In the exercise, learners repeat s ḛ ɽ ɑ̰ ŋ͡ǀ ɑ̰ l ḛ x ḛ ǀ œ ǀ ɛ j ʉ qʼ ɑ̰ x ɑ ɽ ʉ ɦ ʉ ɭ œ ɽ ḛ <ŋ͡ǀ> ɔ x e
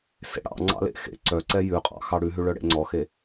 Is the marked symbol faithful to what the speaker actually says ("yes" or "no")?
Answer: yes